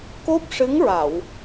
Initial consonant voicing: voiceless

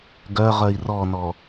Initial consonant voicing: voiced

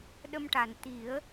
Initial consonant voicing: voiced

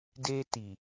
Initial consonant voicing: voiced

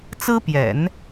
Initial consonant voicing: voiceless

